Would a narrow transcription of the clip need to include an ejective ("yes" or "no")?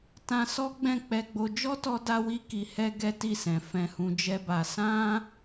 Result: no